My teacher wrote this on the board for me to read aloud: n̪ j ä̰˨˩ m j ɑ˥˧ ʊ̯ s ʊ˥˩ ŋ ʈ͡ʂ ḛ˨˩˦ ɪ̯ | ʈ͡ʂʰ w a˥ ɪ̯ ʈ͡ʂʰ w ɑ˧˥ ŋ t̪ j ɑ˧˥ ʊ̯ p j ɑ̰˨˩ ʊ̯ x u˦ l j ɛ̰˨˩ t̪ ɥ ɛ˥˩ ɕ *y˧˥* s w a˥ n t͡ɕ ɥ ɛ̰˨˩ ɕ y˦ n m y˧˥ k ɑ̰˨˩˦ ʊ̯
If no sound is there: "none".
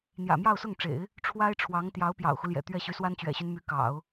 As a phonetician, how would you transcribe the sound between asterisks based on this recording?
y˧˥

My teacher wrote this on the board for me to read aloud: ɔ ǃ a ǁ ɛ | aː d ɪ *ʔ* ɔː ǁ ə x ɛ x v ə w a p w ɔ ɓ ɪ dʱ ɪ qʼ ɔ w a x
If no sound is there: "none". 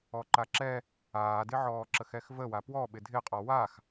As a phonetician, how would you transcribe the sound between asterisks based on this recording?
ʕ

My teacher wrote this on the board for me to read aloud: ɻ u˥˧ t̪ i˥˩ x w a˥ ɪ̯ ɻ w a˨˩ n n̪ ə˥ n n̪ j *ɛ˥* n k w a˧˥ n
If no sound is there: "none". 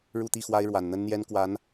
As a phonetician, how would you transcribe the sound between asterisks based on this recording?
ɛ˥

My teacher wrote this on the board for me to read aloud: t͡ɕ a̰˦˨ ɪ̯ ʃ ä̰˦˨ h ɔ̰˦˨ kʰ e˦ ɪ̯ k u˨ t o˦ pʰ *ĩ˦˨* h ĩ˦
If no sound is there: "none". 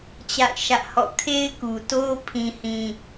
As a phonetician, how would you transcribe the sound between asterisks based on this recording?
ĩ˦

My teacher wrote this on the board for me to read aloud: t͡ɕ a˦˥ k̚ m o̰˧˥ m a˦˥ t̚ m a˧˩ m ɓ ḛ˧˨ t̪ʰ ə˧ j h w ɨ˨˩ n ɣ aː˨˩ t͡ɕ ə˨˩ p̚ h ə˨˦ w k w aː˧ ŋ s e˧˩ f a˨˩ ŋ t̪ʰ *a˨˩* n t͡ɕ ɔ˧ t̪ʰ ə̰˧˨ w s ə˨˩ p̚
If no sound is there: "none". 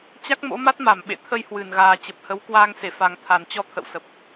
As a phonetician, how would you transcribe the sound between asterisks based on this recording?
a˨˩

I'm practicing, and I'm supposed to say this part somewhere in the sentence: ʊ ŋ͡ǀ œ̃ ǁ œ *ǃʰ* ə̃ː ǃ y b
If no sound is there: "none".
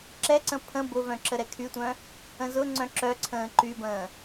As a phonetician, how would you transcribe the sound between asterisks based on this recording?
ǀʰ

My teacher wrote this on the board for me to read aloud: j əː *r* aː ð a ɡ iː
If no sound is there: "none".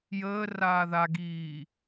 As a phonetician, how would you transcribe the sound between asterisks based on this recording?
r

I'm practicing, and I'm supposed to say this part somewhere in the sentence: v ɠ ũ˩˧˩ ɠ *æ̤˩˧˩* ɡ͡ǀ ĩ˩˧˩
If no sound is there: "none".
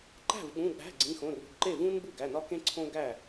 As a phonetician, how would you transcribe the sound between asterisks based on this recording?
æ̤˩˧˩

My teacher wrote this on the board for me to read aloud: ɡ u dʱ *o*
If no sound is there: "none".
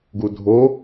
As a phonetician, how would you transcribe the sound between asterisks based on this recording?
o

